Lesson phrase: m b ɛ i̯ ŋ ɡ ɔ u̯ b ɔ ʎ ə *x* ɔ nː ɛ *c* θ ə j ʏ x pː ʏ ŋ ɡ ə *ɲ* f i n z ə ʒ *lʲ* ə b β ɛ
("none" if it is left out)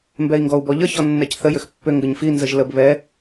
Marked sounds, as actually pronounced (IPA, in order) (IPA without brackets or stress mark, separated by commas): ç, c, ɲ, l